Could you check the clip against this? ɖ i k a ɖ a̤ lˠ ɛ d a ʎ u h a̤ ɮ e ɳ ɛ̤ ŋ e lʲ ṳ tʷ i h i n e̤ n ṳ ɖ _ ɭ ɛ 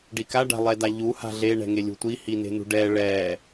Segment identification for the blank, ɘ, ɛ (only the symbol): ɛ